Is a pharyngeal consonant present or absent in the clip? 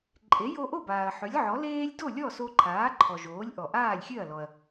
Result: present